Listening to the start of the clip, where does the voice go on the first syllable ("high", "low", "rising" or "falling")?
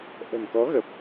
low